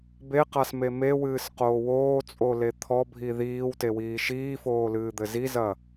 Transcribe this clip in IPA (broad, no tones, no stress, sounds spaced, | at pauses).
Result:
b e q a s m e m e w ɨː s q oː w oː t͡sʼ o l e t̪ʰ ɔ bʱ i ð iː w t e w iː ʃ iː f oː l ɨː d̪ ɘ z i z ɐ